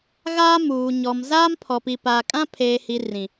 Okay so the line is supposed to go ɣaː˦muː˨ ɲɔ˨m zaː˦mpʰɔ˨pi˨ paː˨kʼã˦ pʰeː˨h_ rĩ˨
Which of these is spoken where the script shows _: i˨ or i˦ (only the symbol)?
i˨